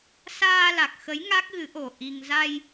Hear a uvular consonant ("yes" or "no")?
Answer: no